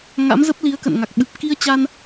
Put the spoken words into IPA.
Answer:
ŋ a̰˧˥ m z ə˦˥ p̚ l i˨˦ ə̯ k ə̰˧˨ n ŋ a˨˩ k̚ ɓ ɨ˨˩ p̚ k i˧ ə̯ t͡ɕ a˧ n

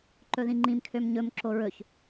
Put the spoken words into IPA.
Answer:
ǃ ɵ ð ĩ ŋ͡ǃ ĩ m kʰ ø m ɲ ɵ m ǁ o ɹ ɵ ç

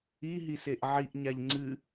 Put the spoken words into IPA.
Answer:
i ɦ i s e ʔ ʕ i ʔ ɲ a ʎ ŋ͡ǀ ɨ

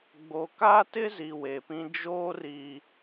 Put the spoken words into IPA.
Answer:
ɡ͡b o˨ k a˦ t ɪ˦ z i˨ w e˨ p ĩ˦ d͡ʒ oː˦ r i˦

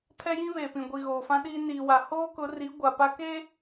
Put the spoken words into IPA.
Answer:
tʰ ɛ˦ j ĩ˦ β eː˨ p ĩ˨ ɡʷ i˨ ɣ oː˨ f ã˦ ɗ iː˦ n iː˨ w a˨ h oː˦ k ʊ˨˦ r i˨˦ ɡʷ a˨ p a˦ k eː˦

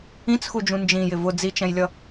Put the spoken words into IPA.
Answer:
ĩ t͡s x u d͡ʒ ũ n d͡ʒ ĩ j ɪ v ʊ d͡z i t͡ʃ ɛ̃ j lʲ ʌ

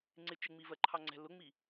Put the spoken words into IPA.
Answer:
ŋ͡ǀ ɪ t͡ʃ ɪ ŋ͡m i v ɜ ǃʰ ɑ ŋ͡ǀ ɛ̤ l ʊ ŋ͡m i

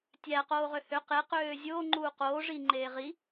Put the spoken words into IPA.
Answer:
tʲ æ q oː ʁ ø h ø q e q øː zʲ oː ŋ͡ǃ uː q oː ʐ i ŋ͡ǃ eː ʁ i

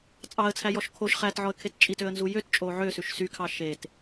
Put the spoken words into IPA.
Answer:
t͡sʼ ɑ ə̯ t͡sʰ æ j ɔ ʃ kʰ o ʃ χ æ t ʕ ɔ ə̯ kʰ e t t͡ʃʼ i t ø ə̯ n z u j ø t t͡ʃʼ o ʕ ø s ʉ ʃ s y kʰ ɑ ʃ e t

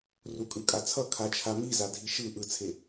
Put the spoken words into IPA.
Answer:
r u kʼ ɯ kʼ a t͡sʰ ʌ kʰ a t͡ʃʰ a m i z a dʱ i ʃ ɯ ʔ ɯ t͡sʰ e

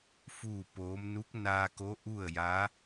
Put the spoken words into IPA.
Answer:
f uː˥˨ p oː˧˥ m n u˧˥ k̚ n aː˧ k o˧˥ ʔ u˥˨ ə̯ j a˧˥

